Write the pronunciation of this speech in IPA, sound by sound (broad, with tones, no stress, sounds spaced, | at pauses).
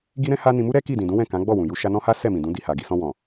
ɡ i˦ ɾ ɛ̃˦ h a˦ n ĩ˧ m u˦ ɾ ɛ˦ k i˦˨ d ĩ˨ d ũ˨˦ w ɛ̃˦˨ k ã˨˦ ɡ͡b ɔ˦˨ w ũ˨ j u˧ ʃ a˧ n ɔ̃˦ h a˦ s ɛ˦˨ m ĩ˨ d ũ˨˦ d i˧ h a˨ ɡ i˧ s ɔ̃˧ w ɔ̃˨